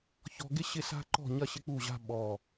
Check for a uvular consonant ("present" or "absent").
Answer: absent